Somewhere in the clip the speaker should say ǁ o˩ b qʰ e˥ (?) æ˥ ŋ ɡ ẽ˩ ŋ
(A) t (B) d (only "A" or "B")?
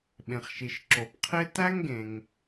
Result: A